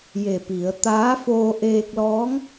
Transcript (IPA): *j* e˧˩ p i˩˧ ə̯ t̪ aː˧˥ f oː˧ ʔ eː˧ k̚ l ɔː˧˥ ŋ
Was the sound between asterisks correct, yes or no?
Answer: yes